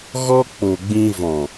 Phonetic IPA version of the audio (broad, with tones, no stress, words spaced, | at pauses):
ɣɔ˦ k͡po˨ɡ͡bĩ˧ vɔ̃˨